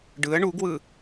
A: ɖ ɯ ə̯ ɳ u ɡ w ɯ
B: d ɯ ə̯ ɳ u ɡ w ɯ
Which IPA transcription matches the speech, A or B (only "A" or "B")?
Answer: A